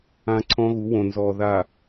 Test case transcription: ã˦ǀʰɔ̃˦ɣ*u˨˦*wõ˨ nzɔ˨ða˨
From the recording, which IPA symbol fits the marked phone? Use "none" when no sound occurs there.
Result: u˨˦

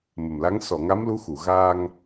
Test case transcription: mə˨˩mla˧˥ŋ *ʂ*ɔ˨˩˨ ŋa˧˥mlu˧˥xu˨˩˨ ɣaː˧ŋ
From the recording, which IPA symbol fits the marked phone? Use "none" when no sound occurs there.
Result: s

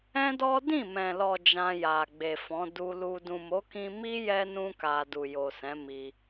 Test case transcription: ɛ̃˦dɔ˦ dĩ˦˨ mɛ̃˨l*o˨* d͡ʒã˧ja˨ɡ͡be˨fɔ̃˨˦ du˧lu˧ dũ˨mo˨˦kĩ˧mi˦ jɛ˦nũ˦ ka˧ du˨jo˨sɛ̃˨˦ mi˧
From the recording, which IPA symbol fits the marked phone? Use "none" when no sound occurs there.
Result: ɔ˨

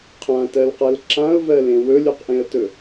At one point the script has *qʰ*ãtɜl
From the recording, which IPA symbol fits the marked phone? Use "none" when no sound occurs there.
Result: qʰ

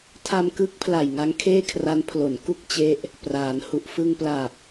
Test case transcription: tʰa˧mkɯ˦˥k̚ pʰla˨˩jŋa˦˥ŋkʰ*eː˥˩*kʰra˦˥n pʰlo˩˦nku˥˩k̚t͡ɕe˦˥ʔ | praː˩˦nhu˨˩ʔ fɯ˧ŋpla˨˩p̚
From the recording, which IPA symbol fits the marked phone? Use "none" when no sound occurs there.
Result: eː˥˩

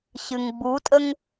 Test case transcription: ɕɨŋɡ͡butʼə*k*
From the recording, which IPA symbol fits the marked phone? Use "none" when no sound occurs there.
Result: ŋ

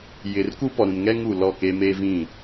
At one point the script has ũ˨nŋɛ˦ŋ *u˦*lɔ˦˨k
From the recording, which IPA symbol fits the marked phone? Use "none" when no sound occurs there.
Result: u˨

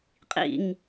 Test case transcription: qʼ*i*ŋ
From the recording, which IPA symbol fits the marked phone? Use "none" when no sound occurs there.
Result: ḭ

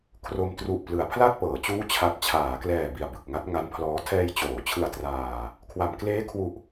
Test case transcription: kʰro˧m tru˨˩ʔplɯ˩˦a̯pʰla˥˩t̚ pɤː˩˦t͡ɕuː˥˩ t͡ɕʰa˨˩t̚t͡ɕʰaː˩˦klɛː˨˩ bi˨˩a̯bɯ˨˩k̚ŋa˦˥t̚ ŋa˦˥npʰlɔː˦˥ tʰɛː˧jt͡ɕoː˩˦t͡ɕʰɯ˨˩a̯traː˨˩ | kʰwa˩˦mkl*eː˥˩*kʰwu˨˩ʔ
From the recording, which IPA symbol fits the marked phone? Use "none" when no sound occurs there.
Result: eː˦˥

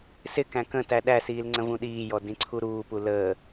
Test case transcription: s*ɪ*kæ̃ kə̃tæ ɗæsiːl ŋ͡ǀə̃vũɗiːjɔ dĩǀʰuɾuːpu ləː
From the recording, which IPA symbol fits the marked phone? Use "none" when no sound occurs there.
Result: ɪ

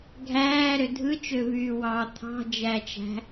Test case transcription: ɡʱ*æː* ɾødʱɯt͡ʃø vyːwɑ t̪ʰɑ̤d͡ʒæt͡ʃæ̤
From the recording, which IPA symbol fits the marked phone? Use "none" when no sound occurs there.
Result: æː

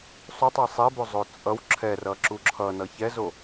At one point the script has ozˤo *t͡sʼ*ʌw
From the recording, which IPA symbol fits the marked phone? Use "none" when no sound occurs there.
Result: t͡sʼ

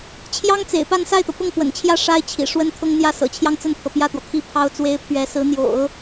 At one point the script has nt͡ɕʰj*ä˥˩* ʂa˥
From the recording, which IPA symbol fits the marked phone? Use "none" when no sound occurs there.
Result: ä˥˩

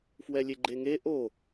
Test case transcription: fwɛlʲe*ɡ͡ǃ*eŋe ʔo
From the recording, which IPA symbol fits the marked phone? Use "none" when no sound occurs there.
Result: ɡ͡ǃ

